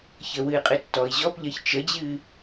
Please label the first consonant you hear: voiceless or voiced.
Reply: voiceless